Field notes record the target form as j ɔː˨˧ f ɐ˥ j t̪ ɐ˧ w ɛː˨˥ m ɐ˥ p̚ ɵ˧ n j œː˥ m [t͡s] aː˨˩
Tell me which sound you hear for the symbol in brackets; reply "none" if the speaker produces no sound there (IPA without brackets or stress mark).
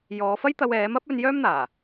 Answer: n̪